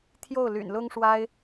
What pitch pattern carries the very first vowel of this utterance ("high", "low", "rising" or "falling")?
falling